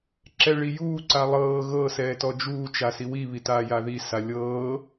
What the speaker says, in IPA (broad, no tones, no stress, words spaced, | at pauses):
ǁɛɭijuː ǀalˠɤː ɣɤ sɛːtɔd͡ʒuː t͡ʃasiwi βitaːjaði salʲɤː